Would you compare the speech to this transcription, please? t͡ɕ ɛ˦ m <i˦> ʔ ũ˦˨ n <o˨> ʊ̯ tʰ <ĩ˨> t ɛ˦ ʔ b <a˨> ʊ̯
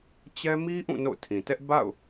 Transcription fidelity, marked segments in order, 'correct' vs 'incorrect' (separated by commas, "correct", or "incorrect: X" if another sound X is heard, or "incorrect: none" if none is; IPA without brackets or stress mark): correct, incorrect: o̰˦˨, correct, incorrect: a̰˦˨